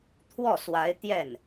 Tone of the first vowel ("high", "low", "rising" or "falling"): falling